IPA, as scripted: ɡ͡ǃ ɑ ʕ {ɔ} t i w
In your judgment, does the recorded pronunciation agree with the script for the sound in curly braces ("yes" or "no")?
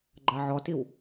yes